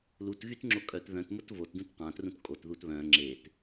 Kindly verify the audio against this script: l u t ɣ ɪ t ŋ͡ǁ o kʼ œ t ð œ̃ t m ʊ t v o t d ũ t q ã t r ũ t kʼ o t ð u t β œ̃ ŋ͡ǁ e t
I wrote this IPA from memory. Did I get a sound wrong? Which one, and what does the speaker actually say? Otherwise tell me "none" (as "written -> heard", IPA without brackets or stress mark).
ɪ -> y